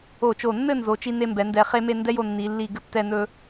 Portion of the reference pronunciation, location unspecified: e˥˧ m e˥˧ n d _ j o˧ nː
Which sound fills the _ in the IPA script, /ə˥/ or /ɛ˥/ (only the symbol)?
ɛ˥